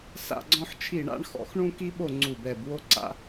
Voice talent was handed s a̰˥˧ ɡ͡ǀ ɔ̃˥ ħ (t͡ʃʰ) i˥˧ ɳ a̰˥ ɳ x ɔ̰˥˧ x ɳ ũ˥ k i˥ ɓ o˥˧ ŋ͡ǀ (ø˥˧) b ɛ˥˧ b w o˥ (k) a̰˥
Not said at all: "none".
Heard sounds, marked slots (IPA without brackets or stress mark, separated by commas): t͡ʃʰ, u˥˧, ǀ